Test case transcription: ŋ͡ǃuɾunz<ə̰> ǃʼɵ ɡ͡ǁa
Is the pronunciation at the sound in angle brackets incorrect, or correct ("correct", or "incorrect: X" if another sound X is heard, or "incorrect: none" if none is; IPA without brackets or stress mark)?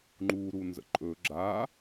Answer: correct